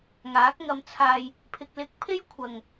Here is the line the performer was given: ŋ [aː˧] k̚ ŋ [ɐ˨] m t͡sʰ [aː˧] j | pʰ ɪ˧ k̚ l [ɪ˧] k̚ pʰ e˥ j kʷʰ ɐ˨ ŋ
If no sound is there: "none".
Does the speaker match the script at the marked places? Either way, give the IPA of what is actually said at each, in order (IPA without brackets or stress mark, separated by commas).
aː˨˥, ɐ˧, aː˧, ɪ˧